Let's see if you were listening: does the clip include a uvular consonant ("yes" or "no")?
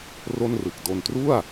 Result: no